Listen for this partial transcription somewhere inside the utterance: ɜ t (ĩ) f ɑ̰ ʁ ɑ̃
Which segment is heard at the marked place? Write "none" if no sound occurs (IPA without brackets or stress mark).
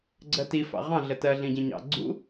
i